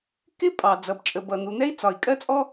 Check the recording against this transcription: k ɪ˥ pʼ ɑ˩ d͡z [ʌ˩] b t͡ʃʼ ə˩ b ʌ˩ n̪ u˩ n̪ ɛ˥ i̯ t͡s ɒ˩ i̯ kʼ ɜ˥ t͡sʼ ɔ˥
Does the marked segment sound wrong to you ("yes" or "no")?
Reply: no